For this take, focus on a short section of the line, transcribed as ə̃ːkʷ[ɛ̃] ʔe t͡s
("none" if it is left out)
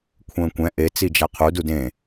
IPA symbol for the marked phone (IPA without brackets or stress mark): ɛ̃